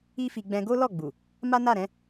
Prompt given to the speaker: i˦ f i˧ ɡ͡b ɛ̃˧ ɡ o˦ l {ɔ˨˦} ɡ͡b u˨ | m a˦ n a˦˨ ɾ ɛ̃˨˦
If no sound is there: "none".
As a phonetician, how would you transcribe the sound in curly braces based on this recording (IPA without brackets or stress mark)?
ɔ˦˨